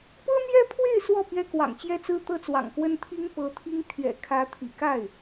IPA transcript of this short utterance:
pɤ˥n̪jɛ˥pʰwe˥˧ɪ̯ swɔ˥˩ pɥɛ˥kwɑ̰˨˩ŋt͡ɕjɛ˥t͡sɹ̩˥ t̪ɤ˥t͡swɑ̰˨˩ŋkwə˥n t̪ʰi˥ŋ pɤ˧˥t̪ʰi˥ŋ t̪ʰɥɛ̰˨˩kʰä˧˥t̪ʰḭ˨˩ ka˥˩ɪ̯

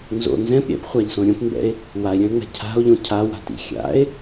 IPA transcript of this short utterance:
nzo̰ nzɛ̃p ɾʲɛ̰pχʷaʎsõ ɾʲõpmbɛ̰e̯ | wae̯ɾʲœ̃e̯ŋ͡mɛ̤ cʰa̤o̯ʎõ cʰawa̤tḭ xʲa̰e̯

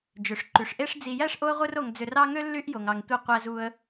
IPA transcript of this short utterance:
d͡ʒø˩ʂǃy˩ʂ ʔe˦ʂd͡zi˨jæ˥ʂ ʔo˦ə̯ʁʷɯ˦ro˨ŋd͡zø˨r ɑ˦ŋø˥lːy˦ʔ jo˩ŋɑ˩ŋtʷe˨ qʷæ˨ zu˨ə̯

